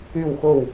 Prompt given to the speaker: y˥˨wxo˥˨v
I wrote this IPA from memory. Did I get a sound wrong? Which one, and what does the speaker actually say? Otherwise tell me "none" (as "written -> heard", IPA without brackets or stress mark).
v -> w